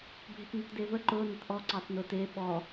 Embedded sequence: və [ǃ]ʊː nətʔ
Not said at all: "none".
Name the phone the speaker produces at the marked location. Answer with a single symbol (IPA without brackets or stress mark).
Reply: ǃ